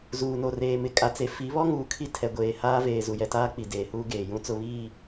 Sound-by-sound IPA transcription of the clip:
z uː˨ n o˨ r eː˨ m ɪ˨ kʼ a˨ t͡s e˨ f i˨˦ β ɔ˦ ŋ uː˨ kʰ i˦ tʰ ɛ˨ ɡʷ eː˨ h aː˦ v eː˨ z u˨ j ɛ˨ t aː˦ k͡p i˨ d eː˨ h uː˦ ɡ eː˨ j ũ˦ t͡s ʊ˦ β iː˦˨

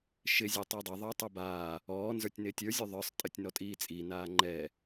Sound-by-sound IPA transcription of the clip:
ʃ ɪ zʲ ɛ tˤ ɪː dˤ ɛ ðˤ ɘː tˤ u b aː | ɔː n z ə˞ tʲ n ɪː tʲ ə˞ zʲ u ðˤ ə˞ sˤ tʼ ɘ tʲ n ɔ tʼ iː t͡sʼ i n aː ŋ͡ǃ ɛː

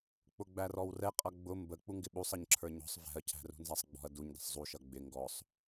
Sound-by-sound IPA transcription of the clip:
k͡p ʊ ɡ͡b æ r ɔ w r ɛ qʼ ʌ ɡ͡b ʊ m b ə k͡p u ŋ ɡ ɪ ɓ u sˤ ʌ ɲ ǁʰ ə˞ ɲ ɔ̤ sˤ v ɛ̤ ɐ̯ cʰ æ̤ r ṳ n z æ sˤ ɡ͡b ɔ̤ ɐ̯ d u ɲ d ə̤ sˤ zˤ u ʃ ʌ ɡ͡b ɪ ŋ ɡ ɔ sˤ

